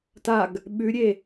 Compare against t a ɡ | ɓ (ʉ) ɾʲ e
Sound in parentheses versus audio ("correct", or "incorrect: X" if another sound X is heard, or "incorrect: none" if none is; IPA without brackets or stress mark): correct